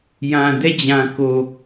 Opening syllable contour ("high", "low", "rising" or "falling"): low